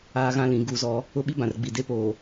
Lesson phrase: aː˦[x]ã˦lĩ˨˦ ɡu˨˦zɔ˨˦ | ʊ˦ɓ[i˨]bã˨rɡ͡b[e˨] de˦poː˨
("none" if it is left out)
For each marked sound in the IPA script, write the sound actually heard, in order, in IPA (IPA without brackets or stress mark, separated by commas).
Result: ɣ, i˦, i˨